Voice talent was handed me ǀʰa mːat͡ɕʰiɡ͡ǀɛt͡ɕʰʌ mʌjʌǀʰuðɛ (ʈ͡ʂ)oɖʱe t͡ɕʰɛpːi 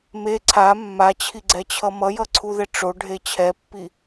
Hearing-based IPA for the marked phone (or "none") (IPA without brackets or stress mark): ʈ͡ʂ